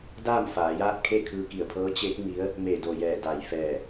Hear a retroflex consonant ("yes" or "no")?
no